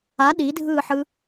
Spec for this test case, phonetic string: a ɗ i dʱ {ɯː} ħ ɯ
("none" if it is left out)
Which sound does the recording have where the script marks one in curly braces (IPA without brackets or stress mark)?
ɯː